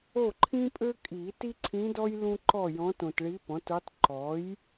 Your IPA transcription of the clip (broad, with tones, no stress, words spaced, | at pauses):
o˥˨ǃʰĩ˥pʼø˥kʼi˨˩˦ ti˥ǀʰĩ˧˥dɔ˥j lũ˥ ǃɔ˥˨jɔ̃˧˥tõ˨t ɭi˧˥pɔ̃˩˥tu˧˥tˤ ǃɔ˩˥j